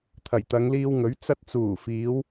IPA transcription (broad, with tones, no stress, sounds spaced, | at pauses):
t̪ʰ ɐ˨˩ j t̪ ɐ˨˧ ŋ l iː˧ w ŋ ɵ˨˥ ɥ t͡s ɐ˧ t̚ t͡s uː˨˩ f iː˨˧ w